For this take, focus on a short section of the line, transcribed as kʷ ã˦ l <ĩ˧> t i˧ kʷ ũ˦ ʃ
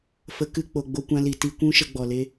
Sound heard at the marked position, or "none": i˧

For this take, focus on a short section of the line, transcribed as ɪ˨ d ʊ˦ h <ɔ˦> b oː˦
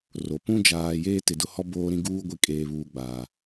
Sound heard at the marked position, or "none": ɔ˦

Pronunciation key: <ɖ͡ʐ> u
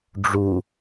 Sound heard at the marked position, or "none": ɖ͡ʐ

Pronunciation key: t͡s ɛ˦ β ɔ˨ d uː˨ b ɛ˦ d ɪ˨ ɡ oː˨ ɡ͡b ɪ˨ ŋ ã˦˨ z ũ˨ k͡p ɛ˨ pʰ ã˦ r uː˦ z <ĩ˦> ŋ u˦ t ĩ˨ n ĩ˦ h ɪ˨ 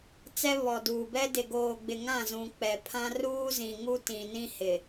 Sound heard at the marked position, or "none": ĩ˨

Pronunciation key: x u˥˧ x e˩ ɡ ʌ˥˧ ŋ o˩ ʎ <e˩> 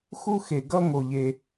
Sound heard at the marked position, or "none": e˩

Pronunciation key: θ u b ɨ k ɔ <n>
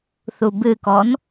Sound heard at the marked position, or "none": n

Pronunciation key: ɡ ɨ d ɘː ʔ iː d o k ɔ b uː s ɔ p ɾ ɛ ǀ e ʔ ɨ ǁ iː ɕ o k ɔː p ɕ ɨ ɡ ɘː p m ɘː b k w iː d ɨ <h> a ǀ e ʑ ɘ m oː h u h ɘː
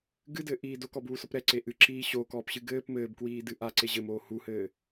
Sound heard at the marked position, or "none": ʔ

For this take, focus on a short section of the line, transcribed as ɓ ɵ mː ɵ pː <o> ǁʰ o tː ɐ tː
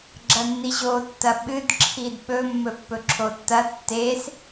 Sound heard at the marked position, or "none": ɵ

